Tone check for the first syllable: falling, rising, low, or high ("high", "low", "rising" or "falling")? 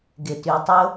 low